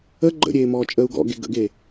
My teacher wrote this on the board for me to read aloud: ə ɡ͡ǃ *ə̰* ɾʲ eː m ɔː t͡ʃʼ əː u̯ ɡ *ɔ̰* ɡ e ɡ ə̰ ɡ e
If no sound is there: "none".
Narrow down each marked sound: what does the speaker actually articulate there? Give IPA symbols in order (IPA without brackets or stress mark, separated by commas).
ə̰, ɔ̰